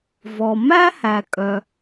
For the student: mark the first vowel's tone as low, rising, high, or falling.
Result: low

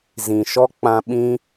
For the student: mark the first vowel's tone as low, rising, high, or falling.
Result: low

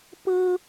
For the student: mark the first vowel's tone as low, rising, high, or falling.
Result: high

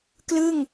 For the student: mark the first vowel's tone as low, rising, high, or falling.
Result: falling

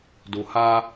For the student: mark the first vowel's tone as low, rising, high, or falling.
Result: low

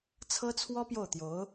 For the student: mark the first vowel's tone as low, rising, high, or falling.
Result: high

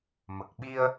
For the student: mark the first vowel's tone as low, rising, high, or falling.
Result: low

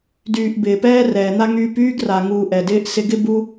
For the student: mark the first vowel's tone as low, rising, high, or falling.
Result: low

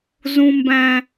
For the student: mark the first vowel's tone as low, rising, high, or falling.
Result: low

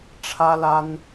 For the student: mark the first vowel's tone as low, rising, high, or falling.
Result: high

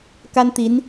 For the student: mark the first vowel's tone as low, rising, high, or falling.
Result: high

